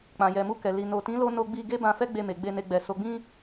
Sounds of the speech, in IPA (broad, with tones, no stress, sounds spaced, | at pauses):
k͡p ã˨ j ɛ˨ m u˧ k ɛ˨ l i˨ n o˨ t ĩ˨˦ l o˦ n o˧ ɡ͡b i˧ ɡ e˦ b ã˧ f ɛ˦ ɡ͡b e˧ m e˨ ɡ͡b e˧ n e˧ ɡ͡b ɛ˨ s o˨ ɡ͡b ĩ˧